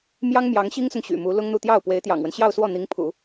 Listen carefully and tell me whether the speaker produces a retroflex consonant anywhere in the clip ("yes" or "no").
no